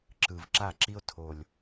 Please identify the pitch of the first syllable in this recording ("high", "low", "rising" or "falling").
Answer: low